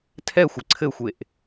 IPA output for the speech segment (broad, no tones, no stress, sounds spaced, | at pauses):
tʰ ɛ xʷ ɘ ǀʰ ɘ xʷ e ʔ